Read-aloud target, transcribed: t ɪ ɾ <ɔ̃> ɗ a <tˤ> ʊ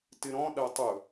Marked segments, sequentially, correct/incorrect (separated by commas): correct, correct